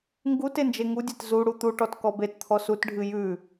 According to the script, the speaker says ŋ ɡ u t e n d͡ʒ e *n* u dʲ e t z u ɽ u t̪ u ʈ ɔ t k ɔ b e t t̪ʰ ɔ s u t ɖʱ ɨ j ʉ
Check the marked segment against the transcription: incorrect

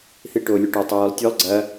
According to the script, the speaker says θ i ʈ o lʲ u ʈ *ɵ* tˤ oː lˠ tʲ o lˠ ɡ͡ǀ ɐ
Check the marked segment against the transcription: correct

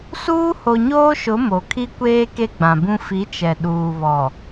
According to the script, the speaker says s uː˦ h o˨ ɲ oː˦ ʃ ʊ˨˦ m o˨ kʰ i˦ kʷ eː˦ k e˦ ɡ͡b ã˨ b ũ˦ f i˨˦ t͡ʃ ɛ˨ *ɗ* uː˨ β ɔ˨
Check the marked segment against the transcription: correct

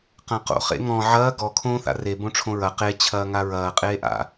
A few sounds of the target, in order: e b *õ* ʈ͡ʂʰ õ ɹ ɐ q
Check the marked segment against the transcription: correct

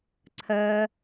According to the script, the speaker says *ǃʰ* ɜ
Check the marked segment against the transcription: incorrect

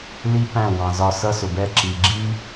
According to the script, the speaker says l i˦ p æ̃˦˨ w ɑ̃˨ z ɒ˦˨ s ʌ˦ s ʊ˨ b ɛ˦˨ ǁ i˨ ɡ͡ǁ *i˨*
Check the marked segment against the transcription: incorrect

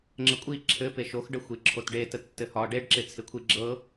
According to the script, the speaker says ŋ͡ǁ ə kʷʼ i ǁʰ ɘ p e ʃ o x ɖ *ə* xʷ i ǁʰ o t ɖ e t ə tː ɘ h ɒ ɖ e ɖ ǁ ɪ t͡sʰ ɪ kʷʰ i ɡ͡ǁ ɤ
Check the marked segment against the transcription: correct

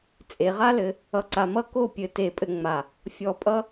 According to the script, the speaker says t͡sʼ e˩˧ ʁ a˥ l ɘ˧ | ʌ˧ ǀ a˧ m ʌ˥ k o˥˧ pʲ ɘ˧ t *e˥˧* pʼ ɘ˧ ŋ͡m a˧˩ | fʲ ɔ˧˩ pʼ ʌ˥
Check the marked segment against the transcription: incorrect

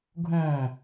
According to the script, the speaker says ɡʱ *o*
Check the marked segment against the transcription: incorrect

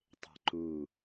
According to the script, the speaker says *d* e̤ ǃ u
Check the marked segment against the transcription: incorrect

